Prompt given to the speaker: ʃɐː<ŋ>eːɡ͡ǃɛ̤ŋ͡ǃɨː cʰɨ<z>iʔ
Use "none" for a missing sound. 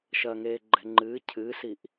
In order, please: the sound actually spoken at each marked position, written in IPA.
ŋ, s

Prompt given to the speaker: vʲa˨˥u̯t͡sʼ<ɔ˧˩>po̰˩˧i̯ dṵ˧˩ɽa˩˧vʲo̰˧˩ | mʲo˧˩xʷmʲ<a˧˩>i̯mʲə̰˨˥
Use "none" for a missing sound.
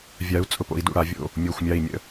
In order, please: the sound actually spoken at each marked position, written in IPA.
ʊ˧˩, a˧˩

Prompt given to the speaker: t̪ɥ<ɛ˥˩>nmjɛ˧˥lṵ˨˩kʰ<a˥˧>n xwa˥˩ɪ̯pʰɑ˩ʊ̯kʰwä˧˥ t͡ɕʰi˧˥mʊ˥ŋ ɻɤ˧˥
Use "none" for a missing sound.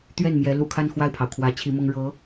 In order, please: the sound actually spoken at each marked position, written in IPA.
ɛ˥˩, a˥˧

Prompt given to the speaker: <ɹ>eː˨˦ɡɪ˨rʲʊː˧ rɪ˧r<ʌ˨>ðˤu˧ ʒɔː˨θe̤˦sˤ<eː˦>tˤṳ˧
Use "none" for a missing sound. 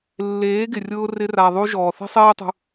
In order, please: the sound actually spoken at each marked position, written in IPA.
lː, a˨, eː˦

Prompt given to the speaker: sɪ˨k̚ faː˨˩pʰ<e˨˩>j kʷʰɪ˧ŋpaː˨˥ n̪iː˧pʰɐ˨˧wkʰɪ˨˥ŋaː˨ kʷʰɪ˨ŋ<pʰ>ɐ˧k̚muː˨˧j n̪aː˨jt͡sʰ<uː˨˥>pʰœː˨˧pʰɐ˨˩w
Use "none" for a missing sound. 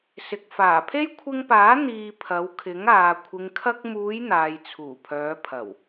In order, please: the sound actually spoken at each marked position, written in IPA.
e˥, kʰ, uː˨˩

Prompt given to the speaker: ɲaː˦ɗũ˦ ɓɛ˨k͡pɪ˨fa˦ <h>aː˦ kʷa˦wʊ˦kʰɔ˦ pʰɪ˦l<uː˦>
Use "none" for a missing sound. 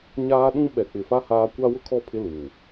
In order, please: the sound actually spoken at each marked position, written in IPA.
h, uː˨

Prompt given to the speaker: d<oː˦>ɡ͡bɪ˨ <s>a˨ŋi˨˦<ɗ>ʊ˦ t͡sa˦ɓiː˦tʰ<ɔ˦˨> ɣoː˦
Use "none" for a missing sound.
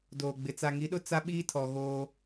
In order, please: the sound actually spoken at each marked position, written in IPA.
oː˨, t͡s, ɗ, ɔ˨

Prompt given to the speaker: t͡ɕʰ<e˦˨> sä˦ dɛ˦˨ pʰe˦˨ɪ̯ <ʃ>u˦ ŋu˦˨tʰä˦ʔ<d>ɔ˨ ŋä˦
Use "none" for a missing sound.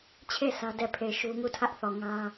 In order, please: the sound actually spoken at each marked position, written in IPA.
e˦˨, ʃ, θ

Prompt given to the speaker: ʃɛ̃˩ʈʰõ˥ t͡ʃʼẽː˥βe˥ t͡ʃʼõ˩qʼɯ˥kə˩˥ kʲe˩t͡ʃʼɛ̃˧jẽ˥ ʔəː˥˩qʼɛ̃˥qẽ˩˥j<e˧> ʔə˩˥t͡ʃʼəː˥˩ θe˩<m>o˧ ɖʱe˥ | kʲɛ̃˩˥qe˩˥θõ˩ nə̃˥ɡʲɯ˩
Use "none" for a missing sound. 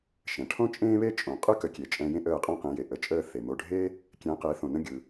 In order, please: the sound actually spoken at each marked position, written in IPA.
e˩, m

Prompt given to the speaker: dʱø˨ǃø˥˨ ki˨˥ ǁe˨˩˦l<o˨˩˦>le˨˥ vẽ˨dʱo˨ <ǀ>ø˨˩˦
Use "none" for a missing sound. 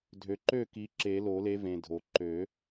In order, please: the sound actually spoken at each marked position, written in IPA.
o˨˩˦, ǃ

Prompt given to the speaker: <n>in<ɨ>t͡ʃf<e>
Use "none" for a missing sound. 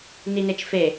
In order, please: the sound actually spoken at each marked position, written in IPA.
n, e, e

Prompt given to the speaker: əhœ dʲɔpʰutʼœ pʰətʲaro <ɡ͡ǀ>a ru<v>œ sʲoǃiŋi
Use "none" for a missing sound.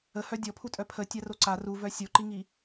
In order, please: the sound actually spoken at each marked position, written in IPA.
ǀ, v

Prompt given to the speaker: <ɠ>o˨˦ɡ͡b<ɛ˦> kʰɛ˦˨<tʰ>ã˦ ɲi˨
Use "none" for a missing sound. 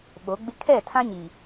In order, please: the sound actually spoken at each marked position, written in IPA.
ɓ, ɪ˦, tʰ

